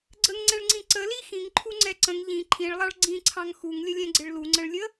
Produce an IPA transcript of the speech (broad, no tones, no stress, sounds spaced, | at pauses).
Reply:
ɡ͡ǀ ə ŋ ŋ͡ǀ ɛ̃ ɭ ŋ͡ǀ ĩ ǀ ə l i x ĩ ŋ ǃʰ u ŋ͡ǀ ɛ ǀ ə̃ ŋ ʎ ĩ ǃʰ ĩ ɭ lˠ ɑ ɭ ɡ͡ǀ ĩ ǀʰ ɑ̃ ŋ x u ŋ lʲ ə lʲ ɛ̃ ɡ͡ǀ ɪ ɭ l u ŋ͡ǀ ə̃ ɭ lʲ ə